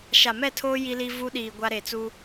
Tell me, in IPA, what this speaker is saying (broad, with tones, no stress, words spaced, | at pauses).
ʃa˨mɛ˦˨tʰoː˦ ji˦li˦ vu˦ɗiː˨ ɡʷa˦ɾe˨t͡su˦